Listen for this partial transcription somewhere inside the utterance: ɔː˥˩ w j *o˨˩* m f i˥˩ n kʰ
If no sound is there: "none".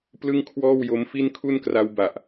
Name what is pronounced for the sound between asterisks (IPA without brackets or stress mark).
o˦˥